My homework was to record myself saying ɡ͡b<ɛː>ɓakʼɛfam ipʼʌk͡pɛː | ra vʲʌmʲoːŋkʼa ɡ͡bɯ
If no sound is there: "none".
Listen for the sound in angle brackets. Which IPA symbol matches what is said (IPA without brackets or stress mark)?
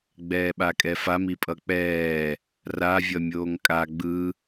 ɛː